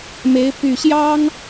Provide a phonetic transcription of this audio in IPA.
m e˧˥ ɪ̯ p y˨˩ ɕ j ɑ˥ ŋ

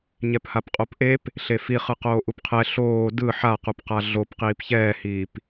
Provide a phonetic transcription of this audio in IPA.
ɲ ɛ p h a p qʼ o p ʔ e p | ɬ e f i χ ɯ q oː ʔ u p qʰ ɛ ɬ oː d ɯ ħ a q u p q a ɮ o p q iː p ç ɛː h iː p

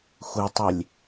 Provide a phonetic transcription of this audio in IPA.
xʷ ɘ tˤ i lʲ

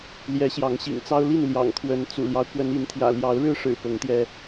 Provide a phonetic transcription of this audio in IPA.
l j ɛ˨˦ ɕ j ɑ˨˦ ŋ ɕ ḭ˨˩ ŋ t͡s ɑ˦ ʊ̯ l i˥˨ n l j ɑ̰˨˩ ŋ kʰ w ə˨˦ n t͡s ṵ˨˩ l j ɑ˦ ʊ̯ k w ə˨˦ n i˨˦ n t̪ʰ j ä̰˨˩ l j ɑ˨˦ ʊ̯ ɻ ɻ̩˦ ʂ ɻ̩˨˩ p ɤ˨˦ ŋ t̪ j ɛ˧

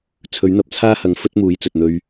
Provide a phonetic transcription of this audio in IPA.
t͡sʰ ɵ˨˥ ɥ n̪ ɐ˧ p̚ t͡sʰ aː˥ h ɐ˨˥ ŋ f ɵ˥ t̚ m uː˨˥ j t͡s ɵ˨ t̚ n̪ ɵ˧ ɥ

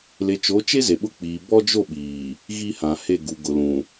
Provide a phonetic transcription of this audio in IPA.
l e˨ t͡ʃ o˨˦ t͡ʃ e˦ z e˨ ɓ ʊ˦ k͡p iː˨ b ɔ˦ d͡ʒ o˦˨ ɓ iː˨ | ɣ i˦ h ã˨ h e˦˨ ɡ u˨ ɡ ʊ˨ l ũ˨

